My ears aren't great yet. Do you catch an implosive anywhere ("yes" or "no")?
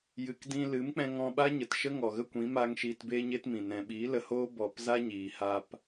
yes